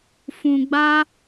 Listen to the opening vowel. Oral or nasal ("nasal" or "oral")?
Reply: nasal